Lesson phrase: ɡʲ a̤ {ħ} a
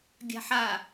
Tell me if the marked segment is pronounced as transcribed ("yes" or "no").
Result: yes